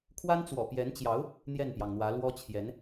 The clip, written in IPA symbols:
kʰwa˥nt͡swɔ̰˨˩pjɛ˧˥nt͡ɕjɑ˧˥ʊ̯ | n̪jɛ˥˩npjɑ˩ŋn̪wä˧˥ lwɔ˥t͡ɕʰjɛ˧˥n

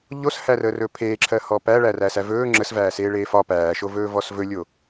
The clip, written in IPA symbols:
ʎoshærəːrɵː pʰeːǁʰɜhɔ pæɭæræːsæ vɵː ŋ͡ǁəsvæːseːɭeː fɒ pæːʃovɵːvɔs vɵlʲo

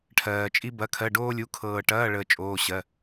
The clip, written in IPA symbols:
ʈʰɜː˩t͡ʃʼi˧ bɐ˩˧˩kʰɜ˩˧˩ɖoː˧lʲu˩˧˩ kʰɤː˩ʈɐː˩˧˩ɭəː˩ t͡ʃʼoː˩˧˩ɕɜ˩˧˩

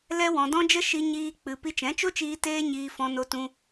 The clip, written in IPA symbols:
lɛ˦ wɔ̃˧dɔ̃˦d͡ʒə˦ ʃi˦ɲiː˦k͡pɨ˧ pi˧t͡ʃɛ̃˨˦t͡ʃo˦t͡ʃiː˧ teː˦ɲiː˧fɔ̃˧no˧ tũ˧

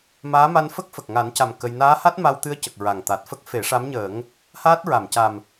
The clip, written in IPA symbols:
maː˧˥ma˧n fə˦˥k̚fə˨˩k̚ŋa˨˩˦nca˨˩m kə˧j naː˧˥ha˦˥t̚ ma˧wt̪ɨ˧ə̯cə˨˩k̚ ɹa˨˩ŋ t̪a˨˩t̚fə˦˥k̚ fe˨˩˦ ʂa˧˥mɲəː˨˩˦ŋ | haː˦˥t̚ɹa˨˩˨mca˨˩m

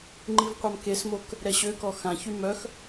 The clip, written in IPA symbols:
ŋ͡ǃivqʷamkesmok | ɾɛɕøkɔ xãçy mœx

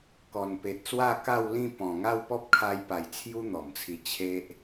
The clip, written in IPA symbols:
kɔ˨˩npe˨t̚ swa˥˧ka˥˧wlĩ˥˧ pɔ̃˨˩ ŋa˥˧wpɔ˦p̚kʰa˧jpa˨˩j t͡sʰju˦n̪ɔ˨˩mt͡sʰi˧ t͡ɕʰe˦ʔ

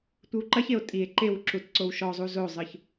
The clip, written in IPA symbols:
tʷɨwǃɐçeo̯ tʼie̯ ǃew ǁutǀowʃɔzˤu zozˤɨç

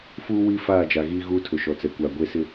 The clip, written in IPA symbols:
fuː˦wi˦ faː˦˨d͡ʒa˨ɣiː˦ ɣuː˦tʰʊ˨ʃɔ˨t͡sɛ˨ kʷa˨ɡʷe˦sɪ˦

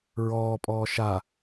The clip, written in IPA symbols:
ɹɔːpʼɔː ʃa

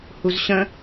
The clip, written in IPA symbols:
huzɕə̃

